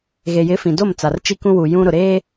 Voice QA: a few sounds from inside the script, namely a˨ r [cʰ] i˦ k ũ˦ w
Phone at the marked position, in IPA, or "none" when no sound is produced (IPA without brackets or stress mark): t͡ʃ